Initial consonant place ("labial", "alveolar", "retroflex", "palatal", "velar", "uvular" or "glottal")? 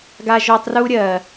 velar